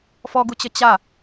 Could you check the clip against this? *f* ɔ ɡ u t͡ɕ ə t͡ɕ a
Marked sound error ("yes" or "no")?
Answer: no